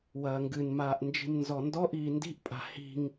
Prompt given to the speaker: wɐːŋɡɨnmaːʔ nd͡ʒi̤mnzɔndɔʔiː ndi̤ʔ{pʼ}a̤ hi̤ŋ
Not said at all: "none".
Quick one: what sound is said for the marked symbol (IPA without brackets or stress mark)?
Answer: pʼ